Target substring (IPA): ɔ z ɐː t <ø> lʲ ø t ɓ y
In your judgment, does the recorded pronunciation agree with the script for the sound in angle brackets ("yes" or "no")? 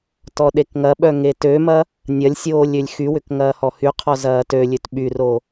yes